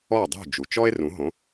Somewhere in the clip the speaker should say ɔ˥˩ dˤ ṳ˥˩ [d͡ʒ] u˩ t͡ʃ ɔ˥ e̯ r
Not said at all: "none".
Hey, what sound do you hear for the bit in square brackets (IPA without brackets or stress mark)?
d͡ʒ